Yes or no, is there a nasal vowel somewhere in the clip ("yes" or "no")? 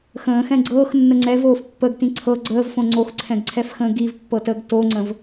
yes